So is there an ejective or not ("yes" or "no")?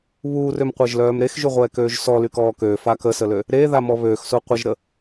no